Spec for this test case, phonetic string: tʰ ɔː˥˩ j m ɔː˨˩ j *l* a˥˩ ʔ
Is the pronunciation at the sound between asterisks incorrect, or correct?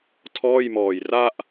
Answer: incorrect